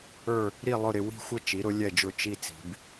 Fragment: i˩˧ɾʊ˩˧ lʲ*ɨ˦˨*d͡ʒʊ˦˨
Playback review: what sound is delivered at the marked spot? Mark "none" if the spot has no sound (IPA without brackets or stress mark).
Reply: ɛ˦˨